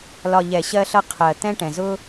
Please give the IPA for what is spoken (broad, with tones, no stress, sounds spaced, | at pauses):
l ɒ˨ ʎ ɛ˨ ɕ ɜ˧ ɬ ʌ˧ qʰ ɜ˨ t̪ ɛ̃˧ ʈ ɛ̃˨ z ʊ˦